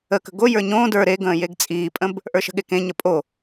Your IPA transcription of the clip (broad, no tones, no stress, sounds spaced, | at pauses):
ə k ə̤ ɡ o j ə˞ ɲ õː d ə˞ ɾ e ɡ ə̃ː j e ɡ t͡sʼ iː pʼ ə̃ b | ʔ ə˞ ʃ ə̤ ɠ e k ẽ ɲ ə pʼ o